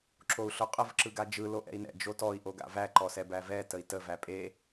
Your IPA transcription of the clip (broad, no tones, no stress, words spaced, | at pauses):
ǁou̯ɬʊqʼəv ǁɯɡad͡ʒɯ loʔɛ̰i̯nɛ̰ d͡ʒotɔi̯ ʔoɡa̰væ ǃɔsɛbævɛ təi̯tə væpʼe